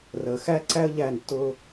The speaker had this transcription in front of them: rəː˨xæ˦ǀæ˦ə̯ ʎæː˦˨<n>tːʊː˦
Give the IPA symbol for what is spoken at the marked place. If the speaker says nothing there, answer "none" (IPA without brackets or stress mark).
n